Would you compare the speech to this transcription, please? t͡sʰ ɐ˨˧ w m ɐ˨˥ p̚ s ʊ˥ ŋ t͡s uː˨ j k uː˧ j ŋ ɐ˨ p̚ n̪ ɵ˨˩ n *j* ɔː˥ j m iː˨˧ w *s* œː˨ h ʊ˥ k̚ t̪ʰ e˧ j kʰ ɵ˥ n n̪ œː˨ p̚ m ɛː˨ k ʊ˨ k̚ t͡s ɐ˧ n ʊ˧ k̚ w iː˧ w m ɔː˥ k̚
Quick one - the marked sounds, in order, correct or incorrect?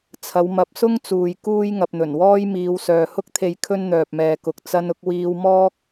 incorrect, correct

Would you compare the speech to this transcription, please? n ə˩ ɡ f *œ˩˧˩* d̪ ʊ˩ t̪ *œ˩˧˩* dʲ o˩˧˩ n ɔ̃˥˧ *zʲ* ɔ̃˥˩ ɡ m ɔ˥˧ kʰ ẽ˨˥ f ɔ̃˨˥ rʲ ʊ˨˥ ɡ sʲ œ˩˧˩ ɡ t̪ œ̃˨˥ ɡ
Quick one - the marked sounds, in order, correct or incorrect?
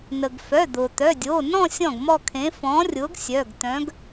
correct, correct, incorrect

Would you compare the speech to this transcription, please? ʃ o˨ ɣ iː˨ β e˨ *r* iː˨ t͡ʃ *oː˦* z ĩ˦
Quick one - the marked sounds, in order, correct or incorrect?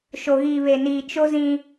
incorrect, incorrect

